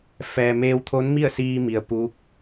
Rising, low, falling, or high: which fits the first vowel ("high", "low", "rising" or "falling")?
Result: low